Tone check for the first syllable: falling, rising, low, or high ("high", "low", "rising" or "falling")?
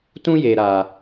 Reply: high